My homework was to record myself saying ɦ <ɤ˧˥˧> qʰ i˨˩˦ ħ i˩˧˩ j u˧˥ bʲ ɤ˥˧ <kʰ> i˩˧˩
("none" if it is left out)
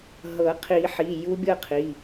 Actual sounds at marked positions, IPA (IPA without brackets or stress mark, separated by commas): ɤ˨˩˦, qʰ